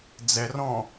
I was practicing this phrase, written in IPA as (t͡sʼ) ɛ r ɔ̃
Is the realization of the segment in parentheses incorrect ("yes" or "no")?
yes